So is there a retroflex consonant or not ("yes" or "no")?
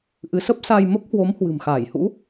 no